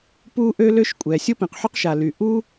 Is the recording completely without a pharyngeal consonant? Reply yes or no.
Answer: no